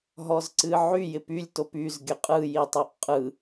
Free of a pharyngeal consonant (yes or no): no